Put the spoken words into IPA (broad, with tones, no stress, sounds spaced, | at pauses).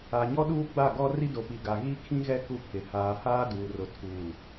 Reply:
a˨ ɲ ɔ˦ ɗ uː˦ ɡ͡b a˦˨ ɡ ɔ˦ r i˦ d o˨ p i˨ ɡ a˨ ɣ i˦ kʰ ĩ˦ ɣ ɛ˦ k u˦ pʰ ɪ˨ h aː˨ h aː˦ d uː˨ r ʊ˨ tʰ uː˨